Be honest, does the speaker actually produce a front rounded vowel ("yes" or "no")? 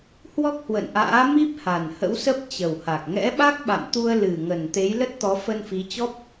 no